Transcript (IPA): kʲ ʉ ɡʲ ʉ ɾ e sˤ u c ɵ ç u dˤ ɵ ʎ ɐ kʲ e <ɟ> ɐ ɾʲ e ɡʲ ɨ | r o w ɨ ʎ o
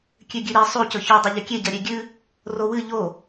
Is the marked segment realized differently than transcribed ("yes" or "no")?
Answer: no